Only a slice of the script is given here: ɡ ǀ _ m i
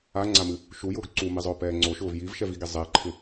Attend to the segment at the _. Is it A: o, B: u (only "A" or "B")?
B